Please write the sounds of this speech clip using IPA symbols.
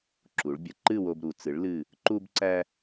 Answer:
ǁu˩˧ɭbʲə˩˧ ǃɨ˥˧wo˧bɾu˩˧ t͡sɨ˩˧ɭ lɨ˧˩ | ǃu˧bǀæ˧

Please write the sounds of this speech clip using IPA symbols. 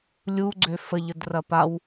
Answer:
lʲuɡ͡ǀø fəʎədrɐ paw

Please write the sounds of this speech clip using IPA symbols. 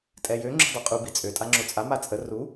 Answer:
tʼɛjø ŋ͡ǁṳdˤuqʼu bit͡sʼø tʼaŋ͡ǁot͡sʼa mat͡sʼə ru

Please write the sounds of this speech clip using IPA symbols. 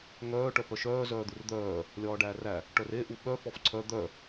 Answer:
ŋœː ʈœpœʃœː zœːd̪urd̪œː | lʲɒːɖæːræ | ʈœre ʔuɓœ fɔfǀʰœ d̪œ

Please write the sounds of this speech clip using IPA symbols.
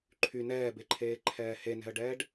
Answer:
ǃʰy nɛːbeǃʰeːǃʰɛː henɛ̤ə̯ɖɛːɖ

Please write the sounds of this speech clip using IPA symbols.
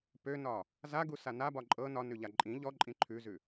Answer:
pønɒ | zaɡusa nabɒ ǃʼɤ nɒnʉʎa ǃʼĩ ʎɔǃʼĩ ǃʰʉzʉ

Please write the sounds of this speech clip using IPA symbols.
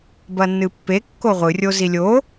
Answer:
bɐnːɨpːe kːoʁʷɨ rʲozilʲo

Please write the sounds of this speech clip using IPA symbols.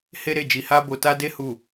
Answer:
he˦ɾe˦˨ d͡ʒi˧ha˦ bo˧ ta˦de˦hu˦˨

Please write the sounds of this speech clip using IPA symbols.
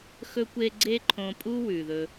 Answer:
xɵ˥kʷe˥ ɡ͡ǀe˥ǃʰõ˧pʼu˥ wʉ˩ðɵ˧

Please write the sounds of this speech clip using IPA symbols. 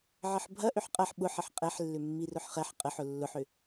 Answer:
ʕəħbʱɐ ʔʏħqʼɐħ ɓʊħ əħqʼɛħlːʏ mːirʊħχɛħ qʼəħ ʊlːʊħʏ

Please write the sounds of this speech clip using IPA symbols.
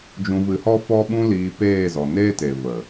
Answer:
d͡ʒũ˧vɨ˧hɔ˦ fɔ˦ɓũ˦liː˧ peː˦˨zɔ˨neː˦te˨ və˨

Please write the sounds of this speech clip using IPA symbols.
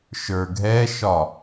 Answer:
ʃə˞ɡʱɛʃɒ

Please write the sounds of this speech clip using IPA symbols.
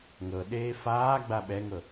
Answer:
ŋɤɗeː faːɡ͡ba ɓɛŋɤ

